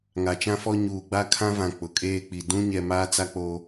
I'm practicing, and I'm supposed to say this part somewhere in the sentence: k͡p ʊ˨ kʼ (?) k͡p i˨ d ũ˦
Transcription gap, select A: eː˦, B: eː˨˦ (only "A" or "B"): A